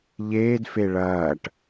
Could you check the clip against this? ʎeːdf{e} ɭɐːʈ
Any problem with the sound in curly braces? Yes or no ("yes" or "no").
no